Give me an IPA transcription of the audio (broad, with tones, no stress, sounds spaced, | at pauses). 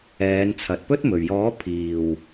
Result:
ɛː˨˧ n t͡sʰ ɐ˨ t̚ p ɵ˥ t̚ m ɵ˨˩ ɥ j ɔː˨˥ pʰ iː˨˩ w